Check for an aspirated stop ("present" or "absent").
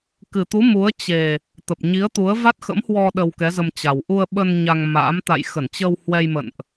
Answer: absent